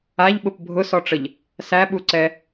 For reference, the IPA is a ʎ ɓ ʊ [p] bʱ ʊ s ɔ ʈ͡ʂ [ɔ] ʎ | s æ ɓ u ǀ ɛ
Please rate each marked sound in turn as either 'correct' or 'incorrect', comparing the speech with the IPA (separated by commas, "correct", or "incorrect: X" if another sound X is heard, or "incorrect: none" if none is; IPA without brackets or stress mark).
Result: correct, incorrect: ə